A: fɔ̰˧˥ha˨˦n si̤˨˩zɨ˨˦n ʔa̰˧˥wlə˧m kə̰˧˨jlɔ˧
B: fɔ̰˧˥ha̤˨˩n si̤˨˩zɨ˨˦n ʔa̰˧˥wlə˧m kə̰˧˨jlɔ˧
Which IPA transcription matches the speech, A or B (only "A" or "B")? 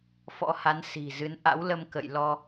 A